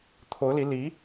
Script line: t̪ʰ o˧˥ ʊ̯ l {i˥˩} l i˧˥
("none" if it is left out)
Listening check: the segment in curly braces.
i˧˥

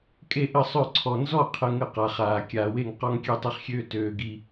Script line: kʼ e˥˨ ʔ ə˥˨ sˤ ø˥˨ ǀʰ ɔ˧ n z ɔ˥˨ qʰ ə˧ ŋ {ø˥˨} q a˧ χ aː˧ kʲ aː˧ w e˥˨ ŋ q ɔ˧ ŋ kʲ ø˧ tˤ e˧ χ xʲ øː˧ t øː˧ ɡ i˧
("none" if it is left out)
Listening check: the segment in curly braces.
ə˥˨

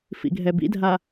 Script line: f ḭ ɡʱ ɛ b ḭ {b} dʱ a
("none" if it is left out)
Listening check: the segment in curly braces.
none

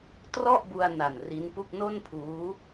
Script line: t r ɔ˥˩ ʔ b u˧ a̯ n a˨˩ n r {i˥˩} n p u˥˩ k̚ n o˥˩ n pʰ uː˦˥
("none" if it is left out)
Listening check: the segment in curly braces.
i˦˥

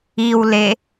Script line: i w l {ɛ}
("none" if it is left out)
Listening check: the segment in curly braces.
e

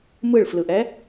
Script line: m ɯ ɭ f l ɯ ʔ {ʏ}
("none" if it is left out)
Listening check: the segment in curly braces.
ɛ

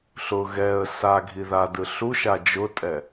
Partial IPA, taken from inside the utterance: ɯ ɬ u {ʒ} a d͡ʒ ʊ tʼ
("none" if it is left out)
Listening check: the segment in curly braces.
ʃ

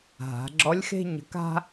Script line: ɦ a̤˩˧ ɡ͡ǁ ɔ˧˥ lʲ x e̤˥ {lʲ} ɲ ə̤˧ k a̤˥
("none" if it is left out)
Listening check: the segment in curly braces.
none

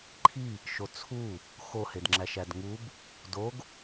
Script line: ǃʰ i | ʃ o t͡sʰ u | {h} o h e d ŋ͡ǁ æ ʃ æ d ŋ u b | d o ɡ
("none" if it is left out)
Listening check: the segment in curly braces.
x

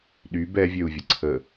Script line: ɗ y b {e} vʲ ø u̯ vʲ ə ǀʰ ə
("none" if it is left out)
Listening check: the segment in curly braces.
ɛ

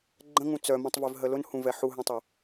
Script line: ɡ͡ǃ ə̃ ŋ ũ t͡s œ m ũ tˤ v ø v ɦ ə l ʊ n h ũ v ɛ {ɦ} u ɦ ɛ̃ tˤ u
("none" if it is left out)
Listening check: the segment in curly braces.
ħ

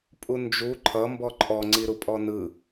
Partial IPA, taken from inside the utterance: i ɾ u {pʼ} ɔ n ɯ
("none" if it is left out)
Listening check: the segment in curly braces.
pʼ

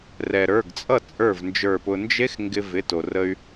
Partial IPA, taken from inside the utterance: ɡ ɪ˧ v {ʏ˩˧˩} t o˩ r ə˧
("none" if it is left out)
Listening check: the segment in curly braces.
ɪ˩˧˩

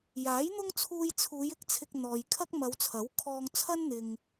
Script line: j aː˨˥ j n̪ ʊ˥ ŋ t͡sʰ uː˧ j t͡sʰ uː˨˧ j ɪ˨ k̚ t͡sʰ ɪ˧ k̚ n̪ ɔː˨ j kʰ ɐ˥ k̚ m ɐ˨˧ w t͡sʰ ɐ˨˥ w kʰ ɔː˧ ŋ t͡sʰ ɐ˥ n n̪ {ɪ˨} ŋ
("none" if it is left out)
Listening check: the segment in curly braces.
ɪ˨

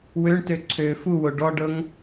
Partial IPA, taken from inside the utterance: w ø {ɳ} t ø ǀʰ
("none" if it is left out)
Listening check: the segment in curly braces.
ɳ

